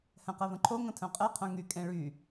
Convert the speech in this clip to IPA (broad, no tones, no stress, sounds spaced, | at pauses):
h ɛ̃ q ɛ v ə̃ ǃʰ o ŋ ə̃ tʰ œ̃ qʼ ɛ qʰ œ̃ ŋ y kʼ ẽ ɭ y